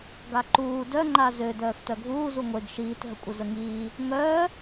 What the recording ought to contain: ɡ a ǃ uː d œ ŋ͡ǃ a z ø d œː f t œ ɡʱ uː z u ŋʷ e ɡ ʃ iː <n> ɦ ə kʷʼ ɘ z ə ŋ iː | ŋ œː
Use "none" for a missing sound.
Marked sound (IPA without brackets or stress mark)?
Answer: t